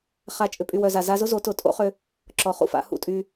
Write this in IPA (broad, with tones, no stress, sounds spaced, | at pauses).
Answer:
χ a˨ t͡ʃʼ ʏ˨ pʼ y˨ w œ˨ z a˨ z a˧ z ʊ˦ z o˨˦ t ʊ˨ tʼ o̰˦ χ ʏ˦ | ǁ ɔ˨ χ ṵ˦˨ f a̰˧ h ṵ˦ tʼ y˧